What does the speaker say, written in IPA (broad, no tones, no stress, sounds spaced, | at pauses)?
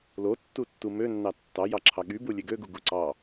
l o tː u tː u m ø nː ɑ tː ɑ j ɑ ǁʰ ɑ ɠ y b u lʲ e ɡ ø ɡ u ɡ u ǀ ɑ